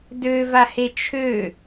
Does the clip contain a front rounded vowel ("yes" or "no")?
yes